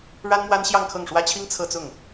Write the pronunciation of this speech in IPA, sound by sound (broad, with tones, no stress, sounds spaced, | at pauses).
ɻ a˥ n m w a˥ n ɕ j ɑ˥˧ ŋ kʰ ɤ˥˩ ŋ ʂ w ä˥ t͡ɕʰ i˥ ŋ t͡sʰ ɤ˥˧ t͡s ʊ˥˩ ŋ